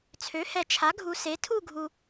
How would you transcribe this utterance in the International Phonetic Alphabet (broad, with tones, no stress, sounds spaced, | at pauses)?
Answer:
t͡sʰ ø˩˥ h ɛ˨ t͡ʃʰ a˩˥ ɡʱ u˨ s e˩˥ tʰ u˥˨ ɡʱ u˨